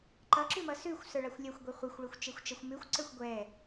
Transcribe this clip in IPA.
ǃ ʌ ǁ ʉ m ʌ s ʉ xʷ s ə˞ ɭ a xʷ lʲ ʌ xʷ ɡʷ e χʷ e xʷ ɭ e xʷ t͡ʃ e xʷ t͡ʃ ʌ xʷ m ʉ xʷ ǀ ə˞ xʷ ɡʷ ɛ

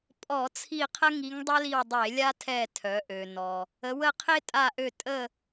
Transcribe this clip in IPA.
pʼ ɔ˧˩˧ t͡sʰ i˦˨ qʰ ə˥ ŋ i˧˥ ŋ dˤ ɛ˥ l i˦˨ w dˤ e˧˩˧ lʲ a˥ tʰ ɛ˦˨ tʰ œ˩˧ ʔ ø˩ n ɔ˩ | ə˩˧ w ə˦˨ qʰ e˥ tʼ a˦˨ ʔ ø˦˨ tʼ ə˦˨

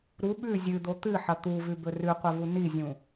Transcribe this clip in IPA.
ɾ u ɓ ʉ zʲ ɨ d̪ o t̪ ɨ ħ ɐ t̪ u v ʉ b ɵ r ʉ qʷ ɐ v u n i zʲ ũ

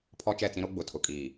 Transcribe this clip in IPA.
pʰ ɔ˦ t͡ʃ ɛ˦˨ t͡s ĩ˦ ɾ o˦ ɡ͡b ʊ˨ tʰ ʊ˨ kʼ iː˨

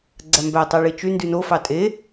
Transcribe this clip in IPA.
ɡ͡ǀ æ m b æ tˤ æ ɭ i t͡ʃ y n d y n o f ɑ tʼ e

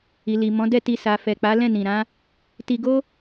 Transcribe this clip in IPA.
i˨ l i˨ m ɔ̃˨˦ d ɛ˦˨ t i˧ s a˨ f ɛ˨ k͡p a˨˦ l ɛ̃˦˨ n ĩ˨ ɾ ã˨˦ | t i˧ ɡ o˦

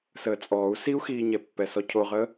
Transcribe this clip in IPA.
s əː t͡sʼ ɔː u̯ s i u̯ x iː ɲ ɛ pː ɛ s ɔ cʰ o ʁ əː

